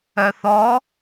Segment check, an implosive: absent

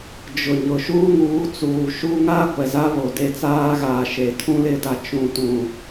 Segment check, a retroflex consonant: absent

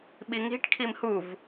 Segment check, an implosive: present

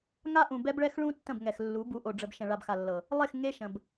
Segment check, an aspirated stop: absent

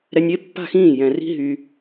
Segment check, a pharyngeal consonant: absent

